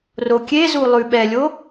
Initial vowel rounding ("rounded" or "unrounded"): rounded